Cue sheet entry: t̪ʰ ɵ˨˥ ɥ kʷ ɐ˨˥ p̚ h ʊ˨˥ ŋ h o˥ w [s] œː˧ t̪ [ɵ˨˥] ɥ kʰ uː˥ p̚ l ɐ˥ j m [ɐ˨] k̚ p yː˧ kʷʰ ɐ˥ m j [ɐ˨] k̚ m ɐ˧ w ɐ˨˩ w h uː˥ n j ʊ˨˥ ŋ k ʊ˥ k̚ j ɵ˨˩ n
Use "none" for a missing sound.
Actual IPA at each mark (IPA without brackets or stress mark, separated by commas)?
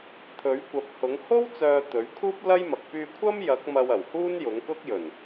t͡s, ɵ˨˥, ɐ˨, ɐ˨˥